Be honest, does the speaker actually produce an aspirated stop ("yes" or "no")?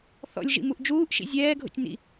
no